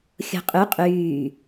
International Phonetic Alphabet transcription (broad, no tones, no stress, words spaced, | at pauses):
xʲo̤qʼy qʼyː